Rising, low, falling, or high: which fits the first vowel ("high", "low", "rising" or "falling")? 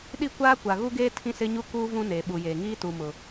falling